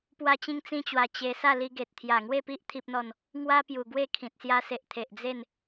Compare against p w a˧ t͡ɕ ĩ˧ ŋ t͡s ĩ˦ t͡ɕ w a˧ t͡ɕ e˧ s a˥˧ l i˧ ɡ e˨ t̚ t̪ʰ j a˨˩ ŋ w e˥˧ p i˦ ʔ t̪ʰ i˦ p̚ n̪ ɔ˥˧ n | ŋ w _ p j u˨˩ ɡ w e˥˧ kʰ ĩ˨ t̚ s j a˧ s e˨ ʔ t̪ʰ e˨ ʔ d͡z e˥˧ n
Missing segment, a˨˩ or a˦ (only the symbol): a˦